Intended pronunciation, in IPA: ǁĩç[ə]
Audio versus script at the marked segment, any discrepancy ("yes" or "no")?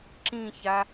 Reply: yes